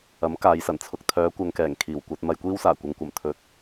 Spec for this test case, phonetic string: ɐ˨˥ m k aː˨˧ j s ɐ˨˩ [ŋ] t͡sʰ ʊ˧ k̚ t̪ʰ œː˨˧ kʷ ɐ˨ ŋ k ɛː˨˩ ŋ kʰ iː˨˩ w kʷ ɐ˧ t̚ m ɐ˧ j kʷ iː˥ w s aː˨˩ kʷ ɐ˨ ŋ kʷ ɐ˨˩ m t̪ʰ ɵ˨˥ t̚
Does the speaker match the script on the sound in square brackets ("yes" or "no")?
no